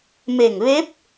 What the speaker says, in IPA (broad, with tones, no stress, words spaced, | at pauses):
me˧˩ŋʋe˧˥p̚